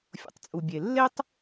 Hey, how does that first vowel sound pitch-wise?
low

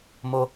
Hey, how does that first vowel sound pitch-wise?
high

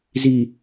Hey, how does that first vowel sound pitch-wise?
low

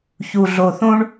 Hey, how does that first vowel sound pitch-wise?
low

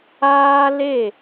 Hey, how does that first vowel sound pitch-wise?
high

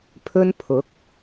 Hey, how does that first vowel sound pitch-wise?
high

